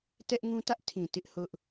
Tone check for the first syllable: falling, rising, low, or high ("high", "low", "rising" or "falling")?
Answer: high